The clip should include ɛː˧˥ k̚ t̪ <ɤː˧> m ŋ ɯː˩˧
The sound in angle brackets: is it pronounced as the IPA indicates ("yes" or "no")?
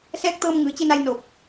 yes